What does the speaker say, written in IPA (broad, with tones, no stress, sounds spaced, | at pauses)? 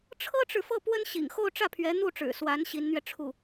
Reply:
ʈ͡ʂʰ ɤ˥ ʈ͡ʂ ɻ̩˨ f ɤ˥˩ p w ə˥ n ɕ ḭ˨˩ ŋ x o˥˧ ʊ̯ ʈ͡ʂ ä˥˩ pʰ ɥ ɛ˧˥ n̪ u˥˩ ʈ͡ʂ ɻ̩˨˩ s w a˧˥ n ɕ i˧˥ n n̪ ɥ ɛ˧ ʈ͡ʂʰ u˥˩